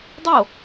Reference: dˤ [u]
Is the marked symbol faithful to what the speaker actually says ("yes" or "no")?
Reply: no